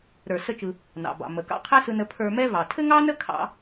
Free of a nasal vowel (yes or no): yes